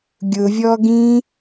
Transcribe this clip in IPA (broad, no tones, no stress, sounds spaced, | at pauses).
ɡʲ ʊ vʲ ɔ ɡ ĩ